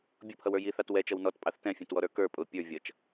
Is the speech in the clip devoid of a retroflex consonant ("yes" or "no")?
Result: yes